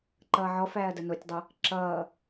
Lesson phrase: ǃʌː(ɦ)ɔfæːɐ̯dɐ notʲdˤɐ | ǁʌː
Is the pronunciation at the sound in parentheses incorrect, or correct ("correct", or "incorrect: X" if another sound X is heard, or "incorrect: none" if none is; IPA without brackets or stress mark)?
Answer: incorrect: ʕ